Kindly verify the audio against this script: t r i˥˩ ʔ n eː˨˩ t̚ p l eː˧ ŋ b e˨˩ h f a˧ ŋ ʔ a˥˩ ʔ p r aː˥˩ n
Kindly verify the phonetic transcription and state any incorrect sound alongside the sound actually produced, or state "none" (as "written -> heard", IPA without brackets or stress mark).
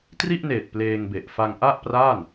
h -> ʔ